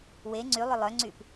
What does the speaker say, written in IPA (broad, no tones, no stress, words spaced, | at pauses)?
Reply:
we ŋ͡ǀylˠʏ lˠœŋ͡ǀyp